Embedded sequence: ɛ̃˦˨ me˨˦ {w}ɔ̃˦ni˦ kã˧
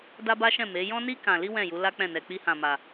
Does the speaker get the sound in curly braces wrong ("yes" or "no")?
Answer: yes